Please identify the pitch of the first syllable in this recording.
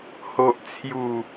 low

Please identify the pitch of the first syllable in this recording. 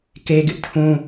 high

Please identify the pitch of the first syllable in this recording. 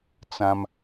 high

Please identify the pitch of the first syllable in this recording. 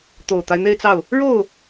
low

